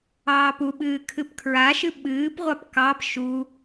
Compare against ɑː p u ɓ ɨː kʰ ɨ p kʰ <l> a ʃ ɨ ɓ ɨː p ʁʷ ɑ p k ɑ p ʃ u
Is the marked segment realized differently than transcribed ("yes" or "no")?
yes